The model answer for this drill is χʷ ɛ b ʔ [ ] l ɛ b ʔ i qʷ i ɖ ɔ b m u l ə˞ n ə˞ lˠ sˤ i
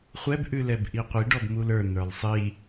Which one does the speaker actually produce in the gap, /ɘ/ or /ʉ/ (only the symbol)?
ʉ